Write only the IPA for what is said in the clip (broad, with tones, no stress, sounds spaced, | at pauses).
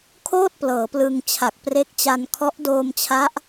kʰ oː˥˩ t̚ p l ɤː˩˦ p l ɯ˧ ŋ t͡ɕʰ a˨˩ k̚ p r e˦˥ k̚ t͡ɕ a˧ n kʰ ɔ˦˥ ʔ d oː˧ m t͡ɕʰ a˦˥ ʔ